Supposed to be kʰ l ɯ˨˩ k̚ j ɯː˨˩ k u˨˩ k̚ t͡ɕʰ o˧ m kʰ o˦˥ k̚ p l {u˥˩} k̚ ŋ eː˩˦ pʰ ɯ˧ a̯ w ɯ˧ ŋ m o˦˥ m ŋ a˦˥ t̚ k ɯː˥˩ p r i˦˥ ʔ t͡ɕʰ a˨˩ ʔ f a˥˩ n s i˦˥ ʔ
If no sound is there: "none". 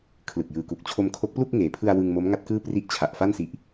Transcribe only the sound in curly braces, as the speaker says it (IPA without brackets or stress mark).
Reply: u˥˩